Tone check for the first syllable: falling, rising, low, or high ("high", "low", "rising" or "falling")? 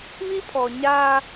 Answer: high